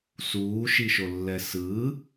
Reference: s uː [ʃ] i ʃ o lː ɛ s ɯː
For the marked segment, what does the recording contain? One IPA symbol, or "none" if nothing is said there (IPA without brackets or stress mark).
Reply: ʃ